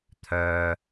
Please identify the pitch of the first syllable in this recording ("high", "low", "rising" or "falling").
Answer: low